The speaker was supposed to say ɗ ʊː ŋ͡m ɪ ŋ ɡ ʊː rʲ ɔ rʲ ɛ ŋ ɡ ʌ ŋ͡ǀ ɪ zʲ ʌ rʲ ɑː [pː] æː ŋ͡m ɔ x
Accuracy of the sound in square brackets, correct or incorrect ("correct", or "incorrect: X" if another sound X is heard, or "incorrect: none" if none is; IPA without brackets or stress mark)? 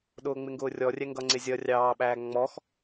incorrect: ɓ